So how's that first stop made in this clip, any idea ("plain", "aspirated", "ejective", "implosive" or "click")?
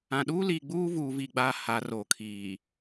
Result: implosive